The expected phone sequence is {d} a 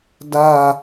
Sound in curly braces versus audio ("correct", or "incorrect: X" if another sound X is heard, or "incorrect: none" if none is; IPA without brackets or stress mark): correct